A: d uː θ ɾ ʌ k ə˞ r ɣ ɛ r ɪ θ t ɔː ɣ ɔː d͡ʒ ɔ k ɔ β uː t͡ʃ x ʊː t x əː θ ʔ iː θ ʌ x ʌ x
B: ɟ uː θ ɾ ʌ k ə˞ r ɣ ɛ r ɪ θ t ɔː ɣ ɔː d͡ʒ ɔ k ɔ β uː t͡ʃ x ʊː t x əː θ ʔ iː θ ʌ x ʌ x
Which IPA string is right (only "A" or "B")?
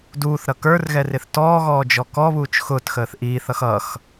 A